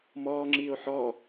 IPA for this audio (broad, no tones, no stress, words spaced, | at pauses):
mɔːŋ͡ǁiːo̯ ħɔ